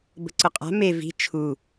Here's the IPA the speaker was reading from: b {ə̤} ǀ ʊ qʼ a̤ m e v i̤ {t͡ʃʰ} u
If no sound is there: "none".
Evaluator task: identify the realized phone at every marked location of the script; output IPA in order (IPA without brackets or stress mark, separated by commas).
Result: ə̤, t͡ʃʰ